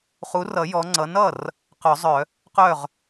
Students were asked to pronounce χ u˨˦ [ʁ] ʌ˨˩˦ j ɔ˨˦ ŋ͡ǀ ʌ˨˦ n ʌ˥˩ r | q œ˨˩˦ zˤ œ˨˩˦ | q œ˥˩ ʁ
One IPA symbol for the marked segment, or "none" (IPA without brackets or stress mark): r